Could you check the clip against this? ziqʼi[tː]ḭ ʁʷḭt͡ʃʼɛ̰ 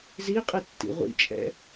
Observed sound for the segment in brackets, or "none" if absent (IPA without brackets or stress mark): tː